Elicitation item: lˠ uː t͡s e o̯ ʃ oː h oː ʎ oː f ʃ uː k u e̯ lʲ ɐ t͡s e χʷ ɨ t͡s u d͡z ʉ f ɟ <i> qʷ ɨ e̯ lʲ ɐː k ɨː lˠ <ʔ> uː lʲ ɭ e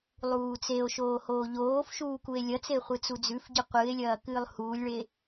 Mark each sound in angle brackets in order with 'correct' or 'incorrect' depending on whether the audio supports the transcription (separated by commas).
incorrect, incorrect